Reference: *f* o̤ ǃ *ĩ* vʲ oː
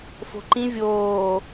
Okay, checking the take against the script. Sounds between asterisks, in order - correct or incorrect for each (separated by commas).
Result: correct, correct